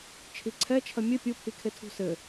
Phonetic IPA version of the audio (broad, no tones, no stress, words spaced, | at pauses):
t͡ʃʰiǀʰɛt͡ʃʰɐ mʲɘ pʲupʰikʰe tʰṳsɘ